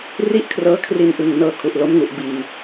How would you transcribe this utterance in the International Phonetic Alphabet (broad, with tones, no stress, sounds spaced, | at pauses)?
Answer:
r i˥˩ ʔ kʰ r ɤː˦˥ kʰ r i˧ n ʔ ɯ˨˩ ŋ n ɤː˧ kʰ u˨˩ ʔ l o˦˥ m ŋ u˨˩ ʔ b iː˨˩